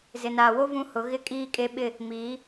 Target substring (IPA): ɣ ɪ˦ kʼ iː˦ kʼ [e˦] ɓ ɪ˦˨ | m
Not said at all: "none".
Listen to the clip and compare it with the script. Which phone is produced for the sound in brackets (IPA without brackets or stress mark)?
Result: e˦